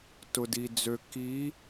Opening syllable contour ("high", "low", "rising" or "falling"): low